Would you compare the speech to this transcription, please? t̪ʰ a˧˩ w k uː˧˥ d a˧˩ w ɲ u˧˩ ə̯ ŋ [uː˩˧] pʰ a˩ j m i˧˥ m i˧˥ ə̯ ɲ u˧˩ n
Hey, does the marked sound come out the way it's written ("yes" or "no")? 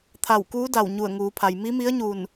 yes